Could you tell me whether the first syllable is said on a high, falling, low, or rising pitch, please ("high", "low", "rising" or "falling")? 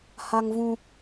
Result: high